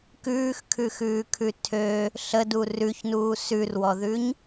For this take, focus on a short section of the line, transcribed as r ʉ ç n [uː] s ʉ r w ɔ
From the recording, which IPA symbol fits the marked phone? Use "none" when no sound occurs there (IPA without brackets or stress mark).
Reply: uː